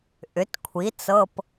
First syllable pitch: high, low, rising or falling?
rising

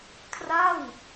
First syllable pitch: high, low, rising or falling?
falling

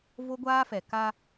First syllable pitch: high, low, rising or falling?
high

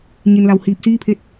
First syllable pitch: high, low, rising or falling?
low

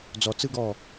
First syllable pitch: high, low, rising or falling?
low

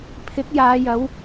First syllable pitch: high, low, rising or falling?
rising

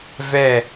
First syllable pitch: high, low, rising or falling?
falling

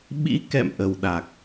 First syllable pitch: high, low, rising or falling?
rising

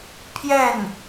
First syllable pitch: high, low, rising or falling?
falling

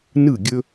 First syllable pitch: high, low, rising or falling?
falling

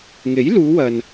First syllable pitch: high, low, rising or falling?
rising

